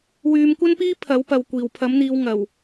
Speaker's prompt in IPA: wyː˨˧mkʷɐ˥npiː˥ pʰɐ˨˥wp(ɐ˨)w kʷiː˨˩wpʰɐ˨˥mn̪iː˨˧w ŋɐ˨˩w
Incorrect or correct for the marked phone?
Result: correct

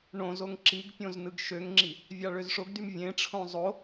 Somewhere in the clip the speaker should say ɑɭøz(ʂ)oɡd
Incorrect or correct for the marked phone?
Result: correct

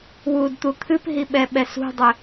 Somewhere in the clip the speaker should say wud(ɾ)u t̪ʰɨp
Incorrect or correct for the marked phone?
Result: incorrect: t̪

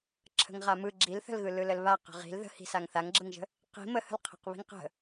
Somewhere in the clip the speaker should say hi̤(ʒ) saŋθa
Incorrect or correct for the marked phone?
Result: incorrect: none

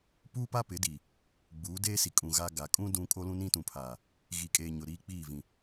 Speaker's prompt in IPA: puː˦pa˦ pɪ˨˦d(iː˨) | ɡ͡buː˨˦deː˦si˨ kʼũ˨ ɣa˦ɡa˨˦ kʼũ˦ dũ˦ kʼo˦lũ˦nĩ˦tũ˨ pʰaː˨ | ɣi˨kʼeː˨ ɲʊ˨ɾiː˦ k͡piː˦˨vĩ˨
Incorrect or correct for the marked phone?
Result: incorrect: i˨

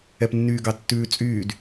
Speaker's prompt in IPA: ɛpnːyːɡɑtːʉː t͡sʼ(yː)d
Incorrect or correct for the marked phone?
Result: correct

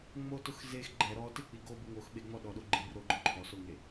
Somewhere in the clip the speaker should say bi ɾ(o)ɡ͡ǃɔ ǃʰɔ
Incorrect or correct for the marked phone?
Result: correct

